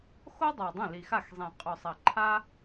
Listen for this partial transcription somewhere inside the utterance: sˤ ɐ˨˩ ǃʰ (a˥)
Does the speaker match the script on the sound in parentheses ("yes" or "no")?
yes